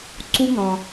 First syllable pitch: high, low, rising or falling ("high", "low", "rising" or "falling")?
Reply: high